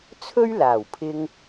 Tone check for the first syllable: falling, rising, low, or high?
high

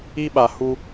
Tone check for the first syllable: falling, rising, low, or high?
high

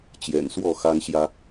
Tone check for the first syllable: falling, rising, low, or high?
low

